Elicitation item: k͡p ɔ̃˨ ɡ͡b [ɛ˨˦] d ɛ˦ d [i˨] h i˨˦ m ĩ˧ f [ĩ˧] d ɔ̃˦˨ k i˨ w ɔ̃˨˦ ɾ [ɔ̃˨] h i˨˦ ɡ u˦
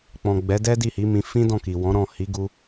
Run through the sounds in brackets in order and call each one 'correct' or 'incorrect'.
correct, incorrect: i˦˨, incorrect: ĩ˦, incorrect: ɔ̃˦˨

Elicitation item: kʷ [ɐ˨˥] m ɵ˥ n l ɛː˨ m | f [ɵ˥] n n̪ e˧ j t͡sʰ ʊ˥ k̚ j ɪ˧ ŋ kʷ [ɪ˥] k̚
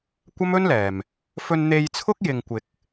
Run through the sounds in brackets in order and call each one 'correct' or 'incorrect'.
incorrect: ɐ˥, incorrect: ɵ˧, incorrect: ɪ˧

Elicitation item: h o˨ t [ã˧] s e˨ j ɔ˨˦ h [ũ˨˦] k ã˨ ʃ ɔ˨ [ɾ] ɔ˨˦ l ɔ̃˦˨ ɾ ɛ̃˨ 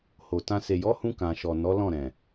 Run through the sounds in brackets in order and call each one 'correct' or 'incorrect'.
correct, incorrect: ũ˧, incorrect: n

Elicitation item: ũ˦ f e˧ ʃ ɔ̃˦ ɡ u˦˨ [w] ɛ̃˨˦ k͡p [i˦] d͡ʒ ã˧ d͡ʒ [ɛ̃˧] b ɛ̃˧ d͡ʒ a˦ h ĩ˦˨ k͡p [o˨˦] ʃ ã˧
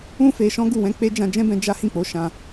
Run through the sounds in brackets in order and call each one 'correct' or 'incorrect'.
correct, incorrect: e˦, incorrect: ɛ̃˦, correct

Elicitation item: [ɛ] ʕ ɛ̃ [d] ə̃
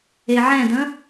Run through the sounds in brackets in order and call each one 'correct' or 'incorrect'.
incorrect: e, correct

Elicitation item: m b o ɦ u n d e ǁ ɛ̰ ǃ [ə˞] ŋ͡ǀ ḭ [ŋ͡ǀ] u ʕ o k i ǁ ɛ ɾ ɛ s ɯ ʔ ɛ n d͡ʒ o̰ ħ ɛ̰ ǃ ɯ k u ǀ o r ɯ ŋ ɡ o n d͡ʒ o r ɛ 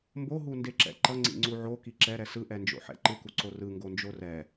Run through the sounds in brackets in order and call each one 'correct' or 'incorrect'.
incorrect: ʌ, correct

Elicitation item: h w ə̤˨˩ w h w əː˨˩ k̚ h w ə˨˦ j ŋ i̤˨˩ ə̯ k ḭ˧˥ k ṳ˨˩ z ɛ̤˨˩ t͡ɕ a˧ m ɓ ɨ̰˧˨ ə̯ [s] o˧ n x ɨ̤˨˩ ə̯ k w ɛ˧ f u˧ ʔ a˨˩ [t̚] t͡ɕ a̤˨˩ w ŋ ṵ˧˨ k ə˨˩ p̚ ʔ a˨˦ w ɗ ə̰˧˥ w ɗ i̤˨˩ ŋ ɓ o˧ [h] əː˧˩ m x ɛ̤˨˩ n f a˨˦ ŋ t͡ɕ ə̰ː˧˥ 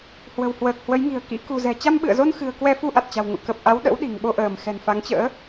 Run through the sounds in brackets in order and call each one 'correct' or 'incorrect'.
incorrect: z, correct, incorrect: ʔ

